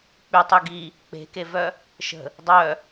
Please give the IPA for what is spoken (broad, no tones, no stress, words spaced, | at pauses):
k͡pytˤy ɡi | k͡pe̤kevœ | ʃə̤ | dˤœ